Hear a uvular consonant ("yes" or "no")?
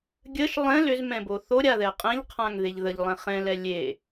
yes